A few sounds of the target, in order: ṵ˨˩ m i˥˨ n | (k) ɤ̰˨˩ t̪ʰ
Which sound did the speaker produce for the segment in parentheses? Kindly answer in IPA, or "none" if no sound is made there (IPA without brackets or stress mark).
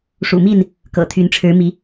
k